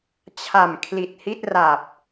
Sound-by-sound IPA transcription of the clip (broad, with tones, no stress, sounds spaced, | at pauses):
t͡ɕʰ a˨˩ m kʰ l i˨˩ t̚ h i˥˩ t̚ r a˨˩ p̚